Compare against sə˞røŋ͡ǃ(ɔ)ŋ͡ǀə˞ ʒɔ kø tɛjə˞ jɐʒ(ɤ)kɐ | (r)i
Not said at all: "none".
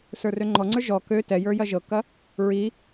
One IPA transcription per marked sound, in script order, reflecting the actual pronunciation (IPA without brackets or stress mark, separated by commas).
ɔ, ɤ, ɹ